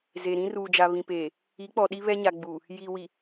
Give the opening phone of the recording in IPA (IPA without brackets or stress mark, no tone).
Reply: z